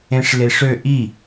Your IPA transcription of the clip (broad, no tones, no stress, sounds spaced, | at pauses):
ẽ ʂ l e ʂ ø ʔ i